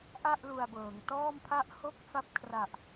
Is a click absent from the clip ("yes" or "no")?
yes